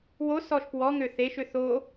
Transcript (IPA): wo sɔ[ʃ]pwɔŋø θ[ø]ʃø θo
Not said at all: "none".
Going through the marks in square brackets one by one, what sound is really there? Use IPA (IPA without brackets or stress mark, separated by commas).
ʃ, e